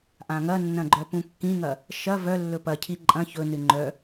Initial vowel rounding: unrounded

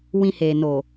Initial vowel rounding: unrounded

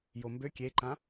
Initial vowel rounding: rounded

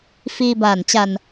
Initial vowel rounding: unrounded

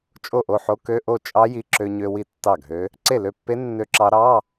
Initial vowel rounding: rounded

